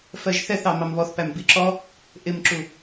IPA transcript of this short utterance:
f ɜ ʒ θ ɛ θ ɑ m ɑ m β ɔ θ p æ m b i ǁ ɔ | ʔ ɪ m ǁ u

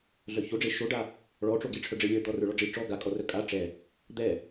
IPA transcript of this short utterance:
ɮ œ ç o ɖ͡ʐ e ʃ o ɖ a | ɭ ɔ ʈ͡ʂ o ɡ i ʈ͡ʂʰ œ ɖ͡ʐ e lʲ ə˞ d̪ ɔ r ə˞ ɭ ɔ ɖ͡ʐ i ʈ͡ʂ ɔ ɡ a kʼ ɔ r œ kʼ a ʈ͡ʂ ɛ | d̪ ɛ

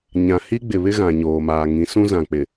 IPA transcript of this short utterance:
ɲ ã˨ h i˦ ɡ͡b ɪ˨ β ɪ˦ ɣ ã˨ ɲ oː˨ m aː˨ ŋ ĩ˨˦ s ũ˦ z ã˨ k͡p ɪ˨

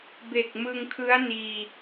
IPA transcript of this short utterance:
b e˨˩ k̚ m ɯ˧ ŋ kʰ ɯ˦˥ a̯ n iː˧

